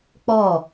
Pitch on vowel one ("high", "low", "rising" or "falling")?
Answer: falling